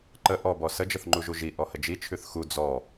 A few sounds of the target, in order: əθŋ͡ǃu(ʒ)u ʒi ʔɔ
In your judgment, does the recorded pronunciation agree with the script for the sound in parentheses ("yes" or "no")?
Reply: yes